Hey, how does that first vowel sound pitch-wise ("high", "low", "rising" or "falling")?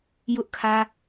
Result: high